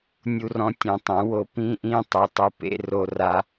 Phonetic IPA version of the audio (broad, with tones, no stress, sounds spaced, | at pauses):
nʲ u˦ r ɔ̃˦ tʲ ɛ̃˧ tˤ ũ˨˦ w o˧ p ĩ˦ ʔ ĩ˦˨ tˤ o˨ tˤ ɯ˨ p ḛ˧ r o˧ r a˧